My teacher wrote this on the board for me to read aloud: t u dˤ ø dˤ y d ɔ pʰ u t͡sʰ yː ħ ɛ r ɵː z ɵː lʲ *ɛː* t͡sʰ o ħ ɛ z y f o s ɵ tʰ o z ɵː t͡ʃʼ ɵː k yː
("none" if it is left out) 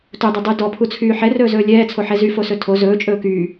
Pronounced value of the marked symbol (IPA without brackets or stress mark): ɛː